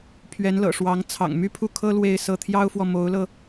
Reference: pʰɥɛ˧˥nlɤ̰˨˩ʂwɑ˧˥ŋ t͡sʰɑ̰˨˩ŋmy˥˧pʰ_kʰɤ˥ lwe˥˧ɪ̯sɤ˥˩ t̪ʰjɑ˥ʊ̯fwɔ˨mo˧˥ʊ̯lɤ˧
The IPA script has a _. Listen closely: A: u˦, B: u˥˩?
B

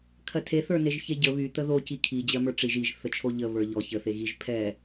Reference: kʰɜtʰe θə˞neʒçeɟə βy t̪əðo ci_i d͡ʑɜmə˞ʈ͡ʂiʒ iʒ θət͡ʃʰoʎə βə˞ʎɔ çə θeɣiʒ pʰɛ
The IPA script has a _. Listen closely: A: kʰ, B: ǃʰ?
A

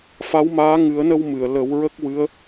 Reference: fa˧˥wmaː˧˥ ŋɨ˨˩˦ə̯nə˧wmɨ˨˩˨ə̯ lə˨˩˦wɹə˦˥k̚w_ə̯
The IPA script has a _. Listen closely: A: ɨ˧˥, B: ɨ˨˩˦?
A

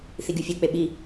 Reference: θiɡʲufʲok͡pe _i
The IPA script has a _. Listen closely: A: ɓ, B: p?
A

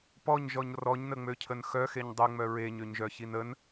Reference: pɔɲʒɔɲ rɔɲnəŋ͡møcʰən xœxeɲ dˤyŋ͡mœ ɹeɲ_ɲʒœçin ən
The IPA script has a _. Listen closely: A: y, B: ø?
B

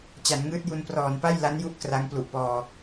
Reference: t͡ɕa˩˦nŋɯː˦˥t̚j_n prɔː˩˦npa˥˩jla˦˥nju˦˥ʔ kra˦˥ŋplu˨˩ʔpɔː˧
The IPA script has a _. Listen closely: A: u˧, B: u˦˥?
A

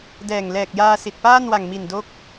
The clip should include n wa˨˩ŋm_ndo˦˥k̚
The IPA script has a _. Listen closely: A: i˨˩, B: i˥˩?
A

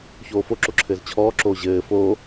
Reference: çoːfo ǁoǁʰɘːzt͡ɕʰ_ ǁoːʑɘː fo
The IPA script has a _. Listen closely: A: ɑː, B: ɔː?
B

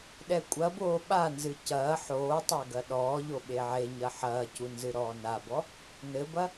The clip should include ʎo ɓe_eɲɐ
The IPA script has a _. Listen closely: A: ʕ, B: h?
A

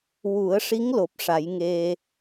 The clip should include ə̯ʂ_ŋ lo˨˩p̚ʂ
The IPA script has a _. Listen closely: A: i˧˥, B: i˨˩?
A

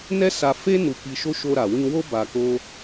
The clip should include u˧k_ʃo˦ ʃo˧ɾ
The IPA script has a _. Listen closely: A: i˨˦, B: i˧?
B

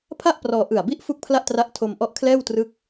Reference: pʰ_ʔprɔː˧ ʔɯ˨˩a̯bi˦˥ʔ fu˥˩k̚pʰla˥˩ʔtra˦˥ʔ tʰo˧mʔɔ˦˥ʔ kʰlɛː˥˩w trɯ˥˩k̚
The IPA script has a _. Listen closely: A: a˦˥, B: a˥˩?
B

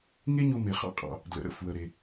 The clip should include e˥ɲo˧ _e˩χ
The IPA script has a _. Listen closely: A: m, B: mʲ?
A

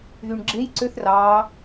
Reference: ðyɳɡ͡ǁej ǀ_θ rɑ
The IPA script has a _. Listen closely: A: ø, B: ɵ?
A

